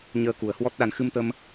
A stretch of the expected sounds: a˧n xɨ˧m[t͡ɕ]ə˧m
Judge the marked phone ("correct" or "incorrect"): incorrect